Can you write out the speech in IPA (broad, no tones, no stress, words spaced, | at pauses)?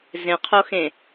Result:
zẽqʰoxẽ